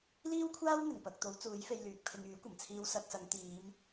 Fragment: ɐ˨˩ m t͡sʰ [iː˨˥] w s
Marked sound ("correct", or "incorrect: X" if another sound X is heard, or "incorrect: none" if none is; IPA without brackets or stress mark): incorrect: iː˧